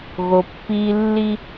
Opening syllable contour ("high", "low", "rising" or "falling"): low